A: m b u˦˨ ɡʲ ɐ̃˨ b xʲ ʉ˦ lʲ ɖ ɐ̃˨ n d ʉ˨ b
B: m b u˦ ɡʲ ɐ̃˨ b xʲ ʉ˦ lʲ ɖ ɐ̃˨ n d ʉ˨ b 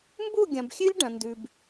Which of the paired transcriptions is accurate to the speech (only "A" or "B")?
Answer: A